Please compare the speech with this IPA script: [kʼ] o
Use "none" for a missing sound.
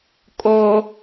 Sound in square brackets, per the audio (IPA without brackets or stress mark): kʼ